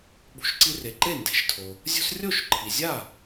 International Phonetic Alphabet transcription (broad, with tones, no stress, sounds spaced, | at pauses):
ɓ ṳ˨˦ ʃ ǀ i˦ r e˩ ǃ e˥˩ n d e̤˨˩˦ ʃ tʰ o˩ | zʲ ṳ˦ s rʲ o˥˩ ʃ ǃʰ i˩ zʲ a˥˩